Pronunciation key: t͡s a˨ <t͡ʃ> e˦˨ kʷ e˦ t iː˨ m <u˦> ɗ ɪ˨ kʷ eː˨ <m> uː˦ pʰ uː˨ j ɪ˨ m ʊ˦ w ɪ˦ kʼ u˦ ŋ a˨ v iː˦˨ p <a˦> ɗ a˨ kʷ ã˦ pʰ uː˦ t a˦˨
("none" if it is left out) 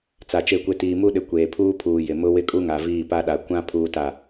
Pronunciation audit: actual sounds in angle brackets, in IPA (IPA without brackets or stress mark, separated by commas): t͡ʃ, u˦, pʰ, a˦